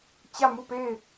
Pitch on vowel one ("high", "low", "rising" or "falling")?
falling